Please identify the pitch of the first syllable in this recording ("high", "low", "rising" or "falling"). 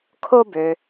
high